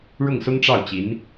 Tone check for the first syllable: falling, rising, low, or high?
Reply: falling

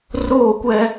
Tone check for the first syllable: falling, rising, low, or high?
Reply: falling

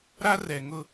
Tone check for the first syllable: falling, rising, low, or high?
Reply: high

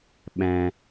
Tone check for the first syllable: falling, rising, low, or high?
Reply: low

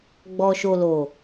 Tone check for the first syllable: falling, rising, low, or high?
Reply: low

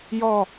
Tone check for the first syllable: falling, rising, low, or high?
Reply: falling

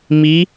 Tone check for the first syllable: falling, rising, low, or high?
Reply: rising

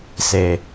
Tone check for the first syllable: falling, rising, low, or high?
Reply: low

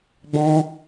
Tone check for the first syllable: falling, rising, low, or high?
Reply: high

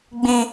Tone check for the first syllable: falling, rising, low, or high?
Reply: high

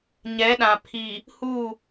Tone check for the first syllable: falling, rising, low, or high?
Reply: rising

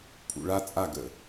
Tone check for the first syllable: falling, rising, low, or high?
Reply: low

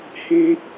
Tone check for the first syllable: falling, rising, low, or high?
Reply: low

